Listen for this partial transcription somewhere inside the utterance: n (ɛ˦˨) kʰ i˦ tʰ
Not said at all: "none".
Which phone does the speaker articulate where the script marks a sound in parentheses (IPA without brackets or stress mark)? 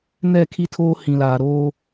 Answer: ɛ˦˨